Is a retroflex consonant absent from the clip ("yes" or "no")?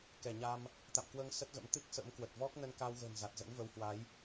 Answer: yes